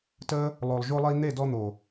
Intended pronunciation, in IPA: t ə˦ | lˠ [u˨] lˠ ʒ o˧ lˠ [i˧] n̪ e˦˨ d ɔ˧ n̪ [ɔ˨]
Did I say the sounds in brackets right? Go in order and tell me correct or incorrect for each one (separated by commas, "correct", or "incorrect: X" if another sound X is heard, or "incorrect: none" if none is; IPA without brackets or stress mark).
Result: incorrect: o˨, correct, incorrect: o˨